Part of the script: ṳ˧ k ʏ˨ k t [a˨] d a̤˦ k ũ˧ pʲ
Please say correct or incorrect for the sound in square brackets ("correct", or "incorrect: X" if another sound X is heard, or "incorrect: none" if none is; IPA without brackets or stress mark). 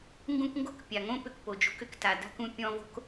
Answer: correct